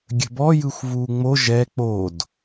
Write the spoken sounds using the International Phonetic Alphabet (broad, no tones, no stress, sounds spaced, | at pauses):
ɡʲ ə̤ b ɔ j ɯ xʷ v uː ŋ͡m o ʒ ɛ k͡p o d